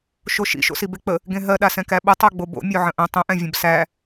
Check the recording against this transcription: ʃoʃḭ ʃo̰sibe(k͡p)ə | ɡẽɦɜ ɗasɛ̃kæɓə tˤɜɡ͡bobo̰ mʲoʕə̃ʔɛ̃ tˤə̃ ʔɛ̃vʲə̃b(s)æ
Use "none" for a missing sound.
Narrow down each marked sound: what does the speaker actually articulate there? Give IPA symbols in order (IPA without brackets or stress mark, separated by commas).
k͡p, s